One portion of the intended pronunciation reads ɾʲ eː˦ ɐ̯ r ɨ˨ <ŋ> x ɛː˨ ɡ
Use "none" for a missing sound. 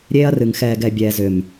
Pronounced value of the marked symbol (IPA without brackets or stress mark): ŋ